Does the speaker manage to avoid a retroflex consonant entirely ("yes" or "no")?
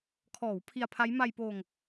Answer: yes